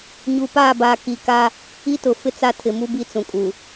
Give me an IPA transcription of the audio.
ɲ u˨ p aː˦˨ b aː˨ k i˨ k a˦ | i˦ t ʊ˨ f ɪ˦ t͡s a˦ tʰ ɪ˨ m u˦ b i˦ t͡s ũ˨ kʼ u˨

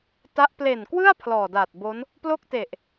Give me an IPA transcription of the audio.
t a˦˥ ʔ p l e˨˩ n k w ɯ˥˩ a̯ pʰ l ɔː˨˩ d a˨˩ t̚ b o˦˥ n | p l o˥˩ k̚ t e˨˩ ʔ

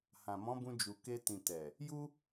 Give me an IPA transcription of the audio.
h ã˨ m ɔ̃˨˦ b ũ˧ d͡ʒ u˨ k e˧ t ĩ˨ t ɛ˨ | j u˦

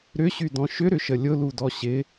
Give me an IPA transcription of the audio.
ɾ ʏ ɕ y d ɔ̃ ʃ ʏ ɾ ʏ ʃ ə lʲ ʊ l u d ɔ ɕ ɪ

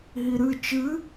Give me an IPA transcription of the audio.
ɦ i ɾ ɨ t͡ʃ ɨ

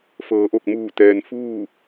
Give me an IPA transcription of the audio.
f ɤː˩˧ ʔ o˧˩ k̚ m uː˧˩ t̪ ɛː˩ n f uː˥˨

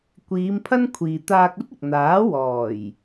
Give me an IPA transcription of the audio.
kʷ iː˨˧ m pʰ ɐ˥ n kʷʰ iː˨ t̪ aː˧ k̚ ɵ˥ t̚ ɪ˨ k̚ n̪ aː˨˥ w ɔː˨˩ j

